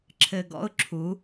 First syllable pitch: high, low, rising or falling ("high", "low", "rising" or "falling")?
low